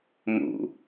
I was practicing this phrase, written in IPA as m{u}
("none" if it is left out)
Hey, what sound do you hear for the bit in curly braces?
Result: ṵ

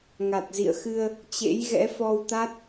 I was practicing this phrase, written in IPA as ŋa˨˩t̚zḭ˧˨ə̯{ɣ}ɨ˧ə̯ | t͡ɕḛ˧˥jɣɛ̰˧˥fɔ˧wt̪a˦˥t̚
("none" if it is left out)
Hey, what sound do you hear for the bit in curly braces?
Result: x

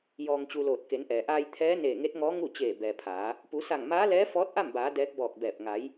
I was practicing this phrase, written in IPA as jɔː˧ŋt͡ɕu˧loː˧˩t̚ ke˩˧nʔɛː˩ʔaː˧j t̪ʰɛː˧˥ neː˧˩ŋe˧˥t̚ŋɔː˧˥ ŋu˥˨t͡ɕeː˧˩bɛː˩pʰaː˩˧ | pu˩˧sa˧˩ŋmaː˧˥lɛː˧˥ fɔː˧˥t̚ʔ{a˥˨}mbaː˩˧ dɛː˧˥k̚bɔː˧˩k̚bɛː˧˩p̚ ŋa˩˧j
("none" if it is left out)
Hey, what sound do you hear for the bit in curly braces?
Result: a˥˨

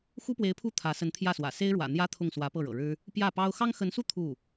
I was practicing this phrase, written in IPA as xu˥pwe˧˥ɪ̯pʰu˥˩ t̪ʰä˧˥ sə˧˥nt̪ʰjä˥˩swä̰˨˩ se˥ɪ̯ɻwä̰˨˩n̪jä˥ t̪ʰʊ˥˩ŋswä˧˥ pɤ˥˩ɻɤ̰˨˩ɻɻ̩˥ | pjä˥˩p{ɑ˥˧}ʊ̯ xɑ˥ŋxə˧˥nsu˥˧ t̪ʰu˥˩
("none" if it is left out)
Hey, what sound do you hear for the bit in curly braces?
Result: ɑ˥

